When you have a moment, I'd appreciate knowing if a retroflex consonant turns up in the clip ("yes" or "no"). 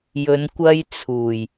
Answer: no